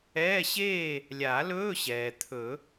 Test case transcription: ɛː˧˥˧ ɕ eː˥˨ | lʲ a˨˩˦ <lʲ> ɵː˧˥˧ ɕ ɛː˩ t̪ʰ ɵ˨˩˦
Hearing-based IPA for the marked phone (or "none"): l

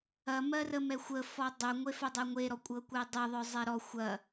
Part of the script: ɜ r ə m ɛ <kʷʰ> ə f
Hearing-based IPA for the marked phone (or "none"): xʷ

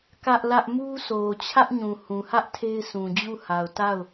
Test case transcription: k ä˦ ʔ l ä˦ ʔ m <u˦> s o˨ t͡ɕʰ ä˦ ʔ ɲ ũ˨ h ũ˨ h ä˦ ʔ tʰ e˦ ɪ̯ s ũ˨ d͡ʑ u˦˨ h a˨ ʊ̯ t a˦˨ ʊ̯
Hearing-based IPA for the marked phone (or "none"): u˦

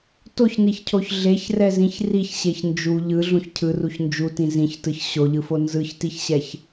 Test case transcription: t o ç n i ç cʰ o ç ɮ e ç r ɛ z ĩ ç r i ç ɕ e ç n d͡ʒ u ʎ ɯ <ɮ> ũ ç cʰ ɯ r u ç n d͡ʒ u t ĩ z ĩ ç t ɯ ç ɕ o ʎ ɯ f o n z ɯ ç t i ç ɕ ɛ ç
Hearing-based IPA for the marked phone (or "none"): ɮ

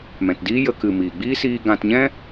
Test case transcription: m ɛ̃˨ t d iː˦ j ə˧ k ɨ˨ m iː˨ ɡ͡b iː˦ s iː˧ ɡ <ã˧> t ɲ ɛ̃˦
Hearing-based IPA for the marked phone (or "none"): ã˧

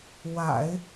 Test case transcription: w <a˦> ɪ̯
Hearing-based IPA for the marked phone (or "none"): a̰˨˩˦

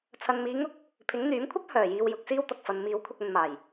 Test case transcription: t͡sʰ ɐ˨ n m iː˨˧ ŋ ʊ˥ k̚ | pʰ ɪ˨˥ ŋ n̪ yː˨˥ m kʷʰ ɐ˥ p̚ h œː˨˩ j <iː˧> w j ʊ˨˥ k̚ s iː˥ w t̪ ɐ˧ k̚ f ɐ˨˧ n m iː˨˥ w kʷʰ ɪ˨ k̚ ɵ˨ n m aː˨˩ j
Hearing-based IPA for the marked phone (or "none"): iː˨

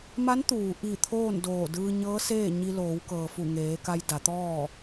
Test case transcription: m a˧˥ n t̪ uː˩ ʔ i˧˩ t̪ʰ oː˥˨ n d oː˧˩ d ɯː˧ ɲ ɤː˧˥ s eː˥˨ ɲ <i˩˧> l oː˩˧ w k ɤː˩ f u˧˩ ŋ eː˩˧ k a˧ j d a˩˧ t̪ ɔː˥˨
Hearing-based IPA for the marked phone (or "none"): i˧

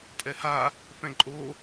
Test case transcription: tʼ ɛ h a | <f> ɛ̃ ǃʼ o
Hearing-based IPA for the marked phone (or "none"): f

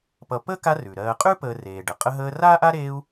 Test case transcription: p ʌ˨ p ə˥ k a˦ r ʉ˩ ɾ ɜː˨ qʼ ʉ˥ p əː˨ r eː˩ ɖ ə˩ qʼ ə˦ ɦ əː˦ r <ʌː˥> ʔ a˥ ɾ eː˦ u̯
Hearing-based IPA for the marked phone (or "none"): aː˥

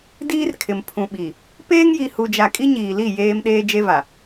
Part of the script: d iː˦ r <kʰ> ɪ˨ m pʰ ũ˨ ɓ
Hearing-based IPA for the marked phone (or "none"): kʰ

